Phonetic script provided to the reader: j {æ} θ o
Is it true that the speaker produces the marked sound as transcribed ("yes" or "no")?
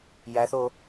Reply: yes